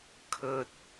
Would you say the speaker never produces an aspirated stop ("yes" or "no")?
no